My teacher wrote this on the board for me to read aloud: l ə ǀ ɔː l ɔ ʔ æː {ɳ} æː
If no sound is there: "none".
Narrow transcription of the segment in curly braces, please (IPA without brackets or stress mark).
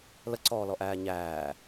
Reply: ɲ